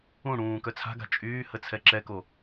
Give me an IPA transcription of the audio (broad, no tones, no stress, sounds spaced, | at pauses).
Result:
ũ ɽ ũː k œ t͡sʰ a̤ ɡ a̤ t͡ʃʼ yː h ə t͡sʰ ɛ ǁ ɛ k o